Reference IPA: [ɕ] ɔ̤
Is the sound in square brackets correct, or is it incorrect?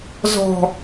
incorrect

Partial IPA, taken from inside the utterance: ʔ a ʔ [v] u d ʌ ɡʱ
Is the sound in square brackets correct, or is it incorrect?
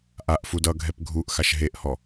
incorrect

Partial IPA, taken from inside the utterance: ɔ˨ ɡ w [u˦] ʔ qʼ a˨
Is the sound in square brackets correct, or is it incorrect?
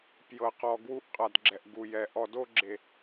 correct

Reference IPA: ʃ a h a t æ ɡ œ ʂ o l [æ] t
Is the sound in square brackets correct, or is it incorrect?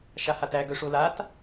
incorrect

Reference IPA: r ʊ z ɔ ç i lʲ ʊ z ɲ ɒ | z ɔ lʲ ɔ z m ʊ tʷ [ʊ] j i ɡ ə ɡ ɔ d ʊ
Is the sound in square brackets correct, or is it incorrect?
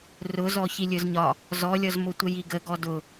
incorrect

